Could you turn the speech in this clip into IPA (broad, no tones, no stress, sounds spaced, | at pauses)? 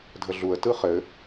dʱ ə ɮ u ə̯ t ɯ χ ɘ